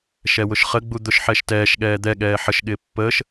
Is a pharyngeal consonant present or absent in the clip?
present